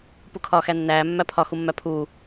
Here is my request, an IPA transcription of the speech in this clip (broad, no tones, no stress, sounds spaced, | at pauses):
p u kʰ ɒː x æ nː æː mː æ pʰ ɒ x u mː æ pʰ uː